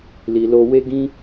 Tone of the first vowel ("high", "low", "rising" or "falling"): low